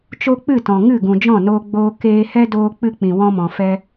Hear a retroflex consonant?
no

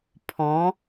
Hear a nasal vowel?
yes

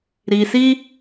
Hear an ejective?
no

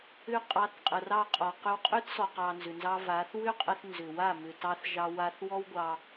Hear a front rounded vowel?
yes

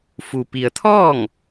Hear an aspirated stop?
yes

